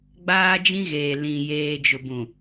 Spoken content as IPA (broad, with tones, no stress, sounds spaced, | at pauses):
ɡ͡b aː˦ d͡ʒ ĩ˦ ɣ eː˨ l ĩ˨ j eː˨ d͡ʒ ʊ˨ b ũ˨